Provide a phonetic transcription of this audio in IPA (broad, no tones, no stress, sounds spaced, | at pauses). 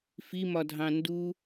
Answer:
f i m ɒ dʱ ɑ̃ n d u